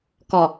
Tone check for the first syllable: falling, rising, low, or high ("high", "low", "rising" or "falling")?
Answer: low